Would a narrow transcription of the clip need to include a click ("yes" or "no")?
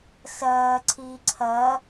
yes